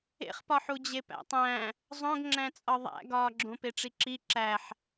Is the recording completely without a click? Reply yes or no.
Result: no